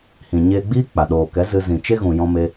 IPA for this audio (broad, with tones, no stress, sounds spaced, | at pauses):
h ĩ˨ ɲ eː˧ ɡ͡b iː˦ k͡p a˨ ɗ oː˨ k ɛ˨˦ z ɨ˧ z ĩ˨ t͡ʃ e˦ ɣ ũ˨ j ɔ̃˧ m e˧